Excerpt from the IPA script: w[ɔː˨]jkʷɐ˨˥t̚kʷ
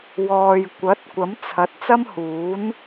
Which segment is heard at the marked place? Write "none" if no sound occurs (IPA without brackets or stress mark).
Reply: ɔː˨